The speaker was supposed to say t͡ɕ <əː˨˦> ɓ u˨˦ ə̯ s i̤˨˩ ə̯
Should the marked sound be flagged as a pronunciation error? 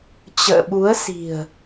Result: yes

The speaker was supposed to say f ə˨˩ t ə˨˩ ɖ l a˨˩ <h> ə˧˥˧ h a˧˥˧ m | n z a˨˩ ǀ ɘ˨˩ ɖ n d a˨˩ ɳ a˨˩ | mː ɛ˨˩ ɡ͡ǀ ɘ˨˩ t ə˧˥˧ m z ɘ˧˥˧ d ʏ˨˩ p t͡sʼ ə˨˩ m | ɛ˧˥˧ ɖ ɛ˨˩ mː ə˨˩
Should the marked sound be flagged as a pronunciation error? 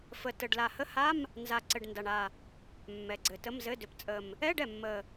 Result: no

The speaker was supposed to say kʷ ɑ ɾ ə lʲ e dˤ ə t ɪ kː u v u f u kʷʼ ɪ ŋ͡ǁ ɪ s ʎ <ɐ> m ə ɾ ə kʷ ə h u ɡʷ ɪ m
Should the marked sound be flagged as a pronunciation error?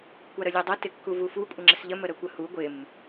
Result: yes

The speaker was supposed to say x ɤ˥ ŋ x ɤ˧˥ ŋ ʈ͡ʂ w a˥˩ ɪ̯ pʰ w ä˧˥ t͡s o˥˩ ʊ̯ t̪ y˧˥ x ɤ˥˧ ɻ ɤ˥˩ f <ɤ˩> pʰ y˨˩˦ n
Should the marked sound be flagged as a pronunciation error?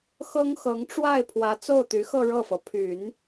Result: no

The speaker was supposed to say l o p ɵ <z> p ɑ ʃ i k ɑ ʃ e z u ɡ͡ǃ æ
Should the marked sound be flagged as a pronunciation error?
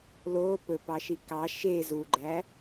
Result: yes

